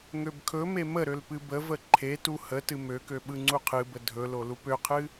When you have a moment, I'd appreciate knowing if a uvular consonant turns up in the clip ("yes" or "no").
yes